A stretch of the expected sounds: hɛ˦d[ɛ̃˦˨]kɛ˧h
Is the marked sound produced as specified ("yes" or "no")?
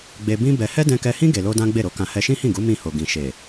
no